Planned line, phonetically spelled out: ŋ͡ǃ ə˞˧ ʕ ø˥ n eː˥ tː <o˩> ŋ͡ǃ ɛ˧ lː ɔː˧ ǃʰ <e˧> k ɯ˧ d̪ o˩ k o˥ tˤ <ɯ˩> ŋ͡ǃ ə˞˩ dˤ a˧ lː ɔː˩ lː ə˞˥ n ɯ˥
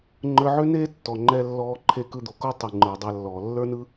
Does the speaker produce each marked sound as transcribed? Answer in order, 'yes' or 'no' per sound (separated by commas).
no, yes, yes